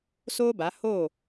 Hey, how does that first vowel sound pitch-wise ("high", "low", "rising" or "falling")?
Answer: high